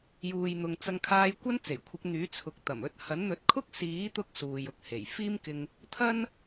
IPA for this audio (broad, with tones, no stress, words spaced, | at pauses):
juː˨jn̪ʊ˨ŋ t͡sɐ˧ŋkʰaː˧j kʷɐ˥nt͡se˨˩jkʷʰɪ˨˥k̚n̪yː˨˥ t͡sʰʊ˨k̚t̪ɐ˨˩m ɵ˧t̚hɐ˨˥nn̪ɵ˨˥t̚kʰʊ˥k̚ siː˨˥t̪ʊ˧k̚ suː˨jʊ˨k̚he˨˩j fiː˥mkɪ˧ŋ | t̪ʰɐ˥n